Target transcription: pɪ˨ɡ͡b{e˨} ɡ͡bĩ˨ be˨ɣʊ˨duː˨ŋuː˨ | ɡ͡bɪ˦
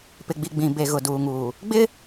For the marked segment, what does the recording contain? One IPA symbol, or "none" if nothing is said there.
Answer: i˨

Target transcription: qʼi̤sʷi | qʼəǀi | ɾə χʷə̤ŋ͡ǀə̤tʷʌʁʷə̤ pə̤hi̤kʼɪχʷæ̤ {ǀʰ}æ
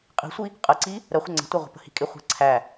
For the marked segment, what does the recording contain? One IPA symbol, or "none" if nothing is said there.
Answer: ǀʰ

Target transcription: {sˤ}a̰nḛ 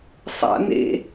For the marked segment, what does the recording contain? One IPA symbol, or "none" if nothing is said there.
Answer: sˤ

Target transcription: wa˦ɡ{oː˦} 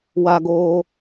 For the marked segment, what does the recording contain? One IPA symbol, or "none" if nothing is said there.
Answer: oː˦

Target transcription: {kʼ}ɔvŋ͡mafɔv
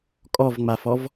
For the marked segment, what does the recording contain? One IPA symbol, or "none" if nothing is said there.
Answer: kʼ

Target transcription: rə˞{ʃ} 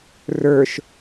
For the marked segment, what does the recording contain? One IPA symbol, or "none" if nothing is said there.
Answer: ʃ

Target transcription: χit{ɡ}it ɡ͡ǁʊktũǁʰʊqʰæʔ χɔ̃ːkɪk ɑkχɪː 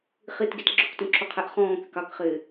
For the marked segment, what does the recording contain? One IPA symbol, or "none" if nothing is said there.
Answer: ɡ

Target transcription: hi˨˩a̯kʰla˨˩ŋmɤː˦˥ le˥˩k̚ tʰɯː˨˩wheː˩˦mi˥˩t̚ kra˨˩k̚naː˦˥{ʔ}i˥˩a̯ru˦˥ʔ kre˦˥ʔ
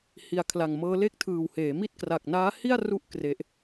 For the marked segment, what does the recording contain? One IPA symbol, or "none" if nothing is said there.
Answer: h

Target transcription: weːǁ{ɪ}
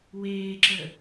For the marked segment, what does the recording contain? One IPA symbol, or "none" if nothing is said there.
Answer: ə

